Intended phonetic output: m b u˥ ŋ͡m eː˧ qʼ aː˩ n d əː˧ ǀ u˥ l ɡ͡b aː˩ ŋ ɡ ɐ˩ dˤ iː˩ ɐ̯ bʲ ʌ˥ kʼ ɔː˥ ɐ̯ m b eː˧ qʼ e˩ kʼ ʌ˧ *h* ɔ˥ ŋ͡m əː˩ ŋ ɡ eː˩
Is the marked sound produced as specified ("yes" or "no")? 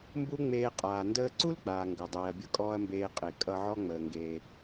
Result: no